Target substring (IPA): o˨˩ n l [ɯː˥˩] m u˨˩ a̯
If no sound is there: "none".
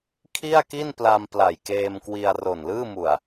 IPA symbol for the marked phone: ɯː˥˩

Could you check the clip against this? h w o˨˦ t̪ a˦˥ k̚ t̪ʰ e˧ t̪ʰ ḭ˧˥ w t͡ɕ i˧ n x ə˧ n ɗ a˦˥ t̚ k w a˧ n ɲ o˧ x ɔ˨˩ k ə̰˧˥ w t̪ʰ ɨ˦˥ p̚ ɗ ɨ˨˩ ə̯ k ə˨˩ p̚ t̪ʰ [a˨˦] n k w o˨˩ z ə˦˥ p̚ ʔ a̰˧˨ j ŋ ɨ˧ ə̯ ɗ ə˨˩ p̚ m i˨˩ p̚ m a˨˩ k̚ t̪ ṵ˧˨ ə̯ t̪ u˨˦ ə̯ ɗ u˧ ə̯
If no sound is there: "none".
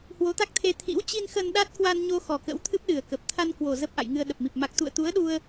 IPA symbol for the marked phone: a˧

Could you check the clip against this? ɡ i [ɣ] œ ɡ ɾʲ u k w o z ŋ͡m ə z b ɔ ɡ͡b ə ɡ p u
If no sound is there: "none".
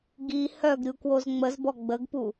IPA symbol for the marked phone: h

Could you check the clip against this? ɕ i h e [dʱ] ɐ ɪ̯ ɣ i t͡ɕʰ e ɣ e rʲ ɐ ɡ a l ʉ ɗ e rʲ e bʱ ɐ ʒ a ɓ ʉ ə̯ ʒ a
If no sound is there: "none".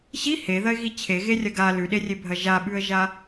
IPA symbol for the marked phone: ð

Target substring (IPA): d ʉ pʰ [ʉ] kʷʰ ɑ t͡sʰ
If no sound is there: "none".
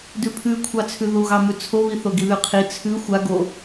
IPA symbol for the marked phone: ʉ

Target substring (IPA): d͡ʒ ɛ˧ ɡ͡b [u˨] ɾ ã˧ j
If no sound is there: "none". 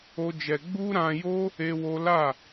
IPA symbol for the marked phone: u˦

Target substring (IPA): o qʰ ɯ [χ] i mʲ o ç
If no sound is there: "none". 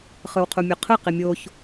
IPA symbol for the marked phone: q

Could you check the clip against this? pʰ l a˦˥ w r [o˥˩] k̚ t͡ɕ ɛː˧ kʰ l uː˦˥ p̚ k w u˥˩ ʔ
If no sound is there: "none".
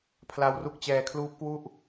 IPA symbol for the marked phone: u˥˩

